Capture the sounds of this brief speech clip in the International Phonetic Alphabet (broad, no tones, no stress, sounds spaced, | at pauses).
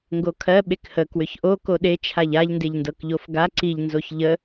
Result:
ŋ ɡ o kʰ ɜ ɓ e k h ə k w ʏ ç ʔ o k o ɗ e t͡ʃʰ a ʎ a ʎ n d e ʎ n d ɤ k ʎ o f ɡ a ǀ i ʎ n z o ç ʎ ə